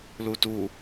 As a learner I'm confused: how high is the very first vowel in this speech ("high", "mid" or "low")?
high